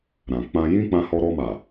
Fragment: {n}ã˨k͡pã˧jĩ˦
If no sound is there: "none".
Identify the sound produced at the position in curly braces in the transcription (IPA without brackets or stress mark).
ɾ